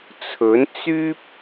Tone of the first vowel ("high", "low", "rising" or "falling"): rising